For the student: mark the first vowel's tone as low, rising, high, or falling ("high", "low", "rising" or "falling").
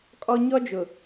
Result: high